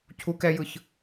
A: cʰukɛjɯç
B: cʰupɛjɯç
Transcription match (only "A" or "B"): A